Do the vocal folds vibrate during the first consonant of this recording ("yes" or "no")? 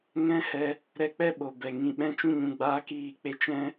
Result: yes